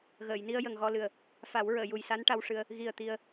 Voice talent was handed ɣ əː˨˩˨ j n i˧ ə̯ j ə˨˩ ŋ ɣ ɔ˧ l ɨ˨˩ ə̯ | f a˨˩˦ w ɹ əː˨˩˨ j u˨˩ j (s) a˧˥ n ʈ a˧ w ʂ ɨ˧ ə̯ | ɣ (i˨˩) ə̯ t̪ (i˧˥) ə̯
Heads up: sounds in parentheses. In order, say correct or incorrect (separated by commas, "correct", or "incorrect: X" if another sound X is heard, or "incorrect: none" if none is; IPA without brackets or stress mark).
correct, correct, incorrect: i˧